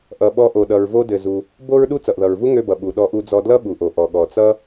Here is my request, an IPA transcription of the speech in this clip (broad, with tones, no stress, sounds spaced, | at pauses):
ʔ ʌ˩ ɓ ɔ˧ ʔ o˩ ɗ ʌ˩ ɹ v o˧ d ɘ˩ z u˩ | b o˥ ɹ ɗ u˥ t͡s ʌ˩ ʔ ð ʌ˩ ɹ v u˥ ŋ ø˧ b ʌ˩ ɓ u˩ ɗ ɔ˧ ʔ u˧ d͡z ɔ˧ d l ʌ˥ ɓ u˩ ʔ o˩ ʔ ɔ˩ ɠ ɔ˩ t͡s ʌ˥